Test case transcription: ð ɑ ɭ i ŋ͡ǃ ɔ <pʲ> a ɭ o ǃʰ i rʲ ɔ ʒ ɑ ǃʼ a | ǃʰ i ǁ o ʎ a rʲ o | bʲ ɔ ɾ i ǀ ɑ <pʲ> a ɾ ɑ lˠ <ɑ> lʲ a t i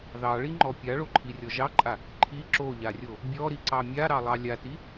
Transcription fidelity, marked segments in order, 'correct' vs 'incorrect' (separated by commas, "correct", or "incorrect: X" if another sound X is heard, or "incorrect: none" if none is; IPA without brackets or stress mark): correct, incorrect: mʲ, correct